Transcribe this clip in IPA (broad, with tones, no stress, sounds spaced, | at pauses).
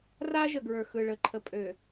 r a˦ ʒ ə˨ ɡ ɹ ə˞˨ x ɯ˨ ɭ ə˨ ǃʰ ə˨ pʼ ø˨